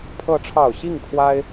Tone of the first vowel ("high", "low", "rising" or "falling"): rising